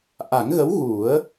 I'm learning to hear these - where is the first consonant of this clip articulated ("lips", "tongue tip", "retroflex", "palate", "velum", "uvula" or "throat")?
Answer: throat